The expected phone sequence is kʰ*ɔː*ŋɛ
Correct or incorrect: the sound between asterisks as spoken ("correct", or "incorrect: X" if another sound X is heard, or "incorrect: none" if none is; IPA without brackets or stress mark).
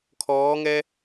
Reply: correct